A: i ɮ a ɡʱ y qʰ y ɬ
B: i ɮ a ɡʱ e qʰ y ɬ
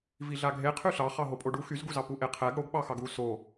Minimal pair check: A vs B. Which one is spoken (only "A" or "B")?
B